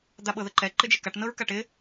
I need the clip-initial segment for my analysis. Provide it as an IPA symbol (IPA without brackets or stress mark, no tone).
d̪